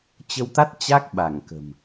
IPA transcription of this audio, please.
t͡ɕ ə˧ w t̪ a˦˥ t̚ t͡ɕ a˦˥ k̚ ɓ a˧˩ ŋ k ə̤˨˩ m

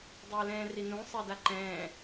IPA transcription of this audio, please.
dˤ əː l ɛ̃ː r i n ũ sˤ ɛ d a ǃ ɛ̃ː

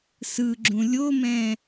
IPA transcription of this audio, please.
s ɯ ɡ͡ǁ ũ lʲ o m ɛ̃

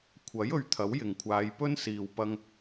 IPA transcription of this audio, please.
kʷʰ ɐ˨˥ j ɵ˧ ɥ t̪ʰ ɐ˨˥ w j ɪ˨ ŋ kʷʰ aː˨˧ j p ɵ˥ n s iː˨ w p ɐ˧ ŋ

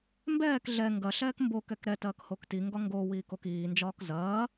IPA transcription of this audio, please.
m b ɛː k ɮ ɛ ŋ ɡ ɐ ɬ ɛː k m b o k ɛ k ɾ ɛ t ɐː k h o k t i ŋ ɡ ɒ ŋ ɡ o w iː k o k iː n d͡ʒ ɒː k z ɐː

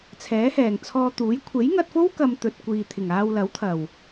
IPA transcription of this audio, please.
t͡sʰ ɛː˨˥ h ɛː˨˩ ŋ t͡sʰ ɔː˧ t̪ uː˨˥ j kʷʰ e˨˥ j ŋ ɐ˧ t̚ f o˥ w k ɐ˨ m t̪ ɵ˨ t̚ kʷ iː˨ t̪ʰ ɪ˨˩ ŋ aː˧ w l ɐ˨˥ w t̪ʰ ɐ˨˩ w

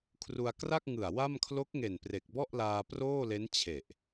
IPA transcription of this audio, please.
kʰ r u˧ a̯ k r a˥˩ k̚ ŋ ɯ˨˩ a̯ w a˥˩ m kʰ l o˦˥ k̚ ŋ e˨˩ n p r e˨˩ k̚ b ɔ˥˩ ʔ l aː˧ p r oː˥˩ l e˦˥ n t͡ɕʰ e˨˩ ʔ

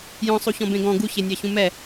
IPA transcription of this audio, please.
j ɔ̃ sˤ u ç ɔ̃ b ẽ ɡ ɔ̃ ɡ u ç e nʲ ɑ ç ũ m ɛ

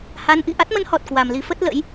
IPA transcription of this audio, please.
h a˨˦ n ʔ ḭ˧˨ ʔ a˦˥ t̚ m ə˨˦ n h ɔ˨˩ t̚ k w a˨˩ m l i˨˦ f ə˦˥ t̚ l ə̰˧˥ j

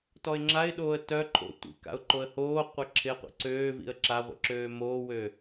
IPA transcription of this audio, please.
t ɔ ɪ̯ ŋ͡ǁ a ɪ̯ ɗ oː ə̯ t œ ǃʰ o̰ tʷ ḭ k a̰ ʊ̯ ǃ o ə̯ h oː qʷ ɛ ǁʰ ɪ ə̯ qʷ ḭ ǀ øː v ḭ ə̯ ǁ a ʁʷ ḭ ǁ øː m oː w ø

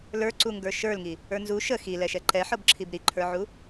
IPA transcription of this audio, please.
l ə˞ ǀ u ŋ ɡ ə˞ ʃ ə˞ l ŋ i | ə˞ n z u ʃ ə x i l ɛ ʃ ɛ ǃ ɛ ħ ɤ b ǁʰ i b ɾ i ǃʰ ə˞ ʕ u

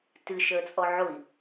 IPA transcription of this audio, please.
t ɨ ʃ əː t͡sʼ ɔ ʕ ʊ i̯

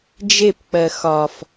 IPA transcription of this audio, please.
d͡ʒ e p k͡p ɜ x ɒ f

